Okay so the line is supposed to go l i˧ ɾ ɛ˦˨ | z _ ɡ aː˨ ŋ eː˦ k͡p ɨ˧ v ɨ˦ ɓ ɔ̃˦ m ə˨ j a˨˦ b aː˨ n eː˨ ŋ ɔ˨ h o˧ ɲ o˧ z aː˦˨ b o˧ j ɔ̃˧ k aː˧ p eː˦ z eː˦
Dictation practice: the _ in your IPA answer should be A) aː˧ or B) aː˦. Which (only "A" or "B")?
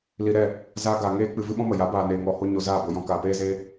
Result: A